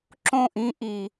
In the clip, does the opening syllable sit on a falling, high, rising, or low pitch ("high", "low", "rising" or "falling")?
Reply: falling